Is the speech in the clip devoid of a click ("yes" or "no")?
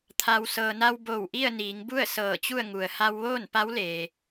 yes